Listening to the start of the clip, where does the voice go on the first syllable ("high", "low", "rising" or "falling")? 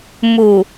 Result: low